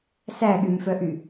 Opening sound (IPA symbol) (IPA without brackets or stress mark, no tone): s